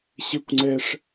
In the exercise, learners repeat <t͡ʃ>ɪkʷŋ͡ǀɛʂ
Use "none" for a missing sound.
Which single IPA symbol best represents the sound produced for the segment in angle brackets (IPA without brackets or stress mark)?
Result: ɕ